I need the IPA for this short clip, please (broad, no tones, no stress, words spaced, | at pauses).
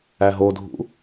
æɦodʱṵ